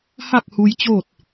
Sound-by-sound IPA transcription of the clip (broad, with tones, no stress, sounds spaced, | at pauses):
h a˥˨ k̚ h u˧ j t͡ɕ oː˥˨ t̚